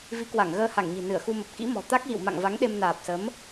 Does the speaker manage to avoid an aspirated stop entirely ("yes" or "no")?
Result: yes